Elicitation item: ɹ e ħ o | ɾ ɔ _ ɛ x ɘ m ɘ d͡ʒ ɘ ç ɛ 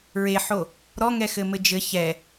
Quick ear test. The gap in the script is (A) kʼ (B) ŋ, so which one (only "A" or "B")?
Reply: B